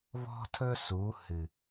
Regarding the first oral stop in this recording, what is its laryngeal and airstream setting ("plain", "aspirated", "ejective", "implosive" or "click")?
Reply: aspirated